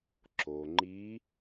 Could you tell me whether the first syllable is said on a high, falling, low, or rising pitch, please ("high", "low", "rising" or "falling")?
low